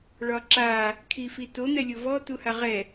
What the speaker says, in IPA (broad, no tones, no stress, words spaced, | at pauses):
ɭɒǁa | kʰifito n̪ɛlʲovɔ tuhaʁɛ